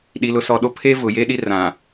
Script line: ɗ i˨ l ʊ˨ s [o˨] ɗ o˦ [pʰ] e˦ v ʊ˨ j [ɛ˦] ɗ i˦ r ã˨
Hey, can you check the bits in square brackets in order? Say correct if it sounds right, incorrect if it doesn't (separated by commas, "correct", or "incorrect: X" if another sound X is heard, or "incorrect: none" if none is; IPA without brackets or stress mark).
incorrect: ɔ˨, correct, incorrect: e˦